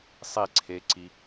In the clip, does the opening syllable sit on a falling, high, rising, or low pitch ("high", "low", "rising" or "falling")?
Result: falling